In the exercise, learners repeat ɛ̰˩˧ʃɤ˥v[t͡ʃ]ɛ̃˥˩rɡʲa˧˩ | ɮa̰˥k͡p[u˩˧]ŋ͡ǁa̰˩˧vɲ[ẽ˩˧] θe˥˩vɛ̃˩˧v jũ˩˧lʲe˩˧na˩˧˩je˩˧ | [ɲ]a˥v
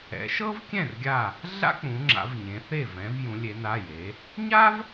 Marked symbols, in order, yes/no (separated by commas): no, no, yes, yes